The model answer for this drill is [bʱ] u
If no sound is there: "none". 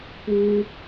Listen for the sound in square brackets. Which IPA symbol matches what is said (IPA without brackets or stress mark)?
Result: p